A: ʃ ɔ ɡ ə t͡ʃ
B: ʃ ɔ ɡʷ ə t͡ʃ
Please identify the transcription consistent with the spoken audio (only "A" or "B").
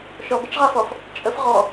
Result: A